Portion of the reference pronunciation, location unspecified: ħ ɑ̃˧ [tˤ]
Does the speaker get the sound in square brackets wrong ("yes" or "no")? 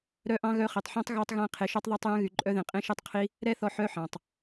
no